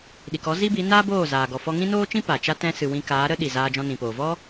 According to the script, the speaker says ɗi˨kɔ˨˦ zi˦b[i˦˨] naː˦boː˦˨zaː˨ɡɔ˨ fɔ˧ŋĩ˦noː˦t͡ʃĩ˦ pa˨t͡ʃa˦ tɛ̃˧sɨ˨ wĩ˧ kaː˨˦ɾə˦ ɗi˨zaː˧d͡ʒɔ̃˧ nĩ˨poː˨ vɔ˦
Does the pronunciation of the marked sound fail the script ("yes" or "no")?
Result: yes